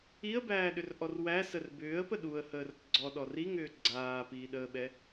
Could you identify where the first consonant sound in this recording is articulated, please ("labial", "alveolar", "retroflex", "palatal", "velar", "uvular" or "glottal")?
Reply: labial